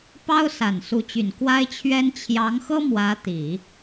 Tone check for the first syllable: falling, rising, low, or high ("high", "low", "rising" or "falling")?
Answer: high